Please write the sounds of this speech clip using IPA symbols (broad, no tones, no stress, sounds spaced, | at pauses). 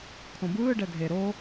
kʰ õ b ɯː ɖ ɛ dʱ e ɾ o